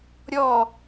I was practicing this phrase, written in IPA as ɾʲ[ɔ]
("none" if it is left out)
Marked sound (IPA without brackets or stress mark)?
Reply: ɔ